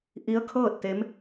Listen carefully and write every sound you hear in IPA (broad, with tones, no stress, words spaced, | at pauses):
ʔi˧˥ə̯kʰɤː˥˨t̚t̪e˧˥m